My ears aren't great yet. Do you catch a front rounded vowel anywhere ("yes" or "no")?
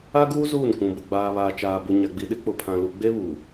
no